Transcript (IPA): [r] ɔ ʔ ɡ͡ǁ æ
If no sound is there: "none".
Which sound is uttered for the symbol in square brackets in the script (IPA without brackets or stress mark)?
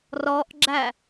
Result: r